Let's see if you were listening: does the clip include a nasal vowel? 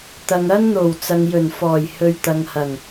no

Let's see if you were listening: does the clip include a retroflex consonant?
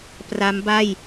no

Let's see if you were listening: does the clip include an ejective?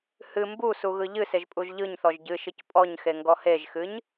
yes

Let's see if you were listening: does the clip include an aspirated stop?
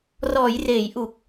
no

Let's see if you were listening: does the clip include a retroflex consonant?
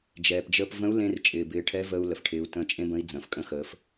yes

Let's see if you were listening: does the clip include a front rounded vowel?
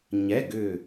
yes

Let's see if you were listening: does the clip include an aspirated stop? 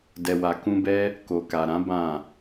no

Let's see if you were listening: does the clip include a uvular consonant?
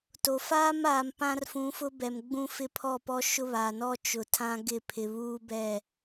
no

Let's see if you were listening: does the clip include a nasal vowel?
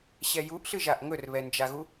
no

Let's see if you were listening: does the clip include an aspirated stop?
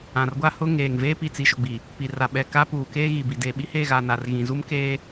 no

